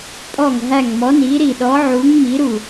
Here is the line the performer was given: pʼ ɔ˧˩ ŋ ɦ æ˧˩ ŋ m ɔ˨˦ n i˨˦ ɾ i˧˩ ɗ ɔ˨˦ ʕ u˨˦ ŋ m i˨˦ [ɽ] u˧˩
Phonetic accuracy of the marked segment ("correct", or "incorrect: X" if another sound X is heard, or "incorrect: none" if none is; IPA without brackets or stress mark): incorrect: ɾ